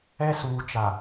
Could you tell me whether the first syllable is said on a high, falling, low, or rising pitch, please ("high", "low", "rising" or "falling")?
high